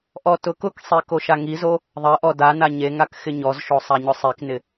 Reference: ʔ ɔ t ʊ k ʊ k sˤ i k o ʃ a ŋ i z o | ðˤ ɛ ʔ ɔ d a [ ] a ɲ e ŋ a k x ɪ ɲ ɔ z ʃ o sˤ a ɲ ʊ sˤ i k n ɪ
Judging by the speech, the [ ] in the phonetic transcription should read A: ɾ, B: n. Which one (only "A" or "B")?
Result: B